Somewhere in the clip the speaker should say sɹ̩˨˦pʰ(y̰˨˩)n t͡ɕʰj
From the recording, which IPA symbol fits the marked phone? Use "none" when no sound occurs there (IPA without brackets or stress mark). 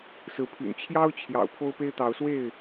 y̰˨˩